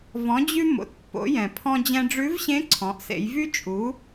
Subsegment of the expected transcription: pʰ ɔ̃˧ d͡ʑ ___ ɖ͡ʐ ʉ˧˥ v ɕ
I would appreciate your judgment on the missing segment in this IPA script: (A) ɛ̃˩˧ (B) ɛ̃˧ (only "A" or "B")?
B